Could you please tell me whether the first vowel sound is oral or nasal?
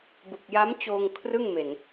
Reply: oral